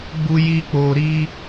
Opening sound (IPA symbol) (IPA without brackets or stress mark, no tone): ɡ͡b